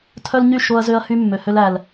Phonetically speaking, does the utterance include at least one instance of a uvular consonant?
no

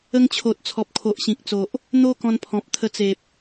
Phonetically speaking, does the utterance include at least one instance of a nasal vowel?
yes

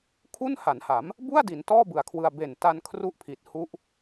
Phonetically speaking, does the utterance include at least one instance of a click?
no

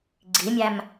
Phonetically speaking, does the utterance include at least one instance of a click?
yes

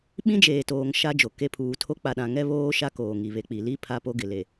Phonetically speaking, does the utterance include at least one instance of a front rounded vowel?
no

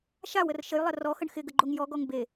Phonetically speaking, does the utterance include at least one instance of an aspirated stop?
no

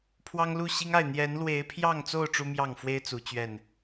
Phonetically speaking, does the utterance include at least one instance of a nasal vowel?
no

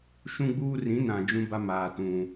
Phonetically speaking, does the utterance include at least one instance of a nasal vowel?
yes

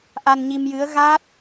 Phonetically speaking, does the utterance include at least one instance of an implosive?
no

